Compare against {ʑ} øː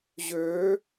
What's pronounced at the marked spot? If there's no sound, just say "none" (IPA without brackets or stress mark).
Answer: ʑ